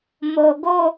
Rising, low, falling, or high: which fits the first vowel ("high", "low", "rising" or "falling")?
low